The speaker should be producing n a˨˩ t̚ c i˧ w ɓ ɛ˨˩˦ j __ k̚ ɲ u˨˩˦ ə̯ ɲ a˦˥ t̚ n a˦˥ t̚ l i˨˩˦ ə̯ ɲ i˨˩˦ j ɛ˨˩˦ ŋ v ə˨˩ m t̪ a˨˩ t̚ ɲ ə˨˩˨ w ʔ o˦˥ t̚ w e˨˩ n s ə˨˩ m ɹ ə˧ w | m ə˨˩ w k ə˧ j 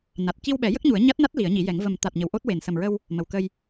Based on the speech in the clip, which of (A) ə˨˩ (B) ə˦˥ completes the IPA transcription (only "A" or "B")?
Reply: B